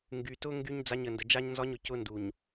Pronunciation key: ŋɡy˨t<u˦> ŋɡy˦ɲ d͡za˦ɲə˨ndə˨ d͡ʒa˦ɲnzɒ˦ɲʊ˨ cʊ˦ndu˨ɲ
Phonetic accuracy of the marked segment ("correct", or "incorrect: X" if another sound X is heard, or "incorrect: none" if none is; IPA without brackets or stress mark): incorrect: ʊ˦